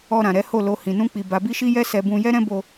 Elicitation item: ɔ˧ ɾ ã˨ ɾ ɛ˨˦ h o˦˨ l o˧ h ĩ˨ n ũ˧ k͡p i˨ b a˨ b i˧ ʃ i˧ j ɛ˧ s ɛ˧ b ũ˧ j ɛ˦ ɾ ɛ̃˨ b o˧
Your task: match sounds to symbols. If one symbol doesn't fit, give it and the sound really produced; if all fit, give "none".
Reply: ɛ̃˨ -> ɛ̃˦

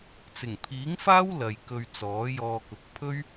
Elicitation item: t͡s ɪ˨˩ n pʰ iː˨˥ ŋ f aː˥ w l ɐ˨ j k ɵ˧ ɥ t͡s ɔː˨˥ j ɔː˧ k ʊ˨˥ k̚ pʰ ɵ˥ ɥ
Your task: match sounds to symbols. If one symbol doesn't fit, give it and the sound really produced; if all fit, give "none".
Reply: n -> ŋ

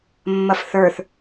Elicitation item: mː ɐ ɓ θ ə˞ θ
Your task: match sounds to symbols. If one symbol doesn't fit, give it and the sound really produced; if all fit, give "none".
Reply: ɓ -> f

